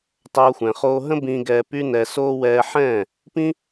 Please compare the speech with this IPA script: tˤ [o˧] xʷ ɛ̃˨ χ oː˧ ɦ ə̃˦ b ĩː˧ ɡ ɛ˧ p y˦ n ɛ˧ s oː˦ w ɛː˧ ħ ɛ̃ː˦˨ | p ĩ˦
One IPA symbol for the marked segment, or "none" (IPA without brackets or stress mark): o˧